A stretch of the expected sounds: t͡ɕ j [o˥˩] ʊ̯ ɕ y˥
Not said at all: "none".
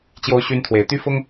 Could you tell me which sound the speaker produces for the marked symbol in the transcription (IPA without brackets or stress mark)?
o˥